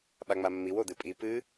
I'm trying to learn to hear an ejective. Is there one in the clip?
yes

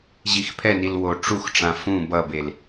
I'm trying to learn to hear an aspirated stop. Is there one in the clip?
yes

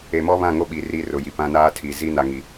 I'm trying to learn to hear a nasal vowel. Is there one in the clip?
yes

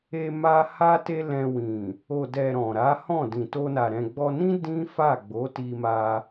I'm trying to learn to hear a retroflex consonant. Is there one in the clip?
no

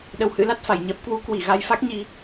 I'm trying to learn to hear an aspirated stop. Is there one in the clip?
no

